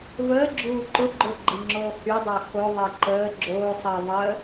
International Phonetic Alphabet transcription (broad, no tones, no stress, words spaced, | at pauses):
vəː ɡ͡ǁuːǃʊ ɡ͡ǃʊɡ͡ǃiŋ͡ǁoː hy dˤoxo ðˤeǃəː ɡ͡ǁoː sˤə ðˤəː